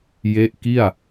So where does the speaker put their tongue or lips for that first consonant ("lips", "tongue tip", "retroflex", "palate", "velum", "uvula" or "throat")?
palate